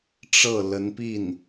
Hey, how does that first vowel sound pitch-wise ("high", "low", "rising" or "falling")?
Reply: falling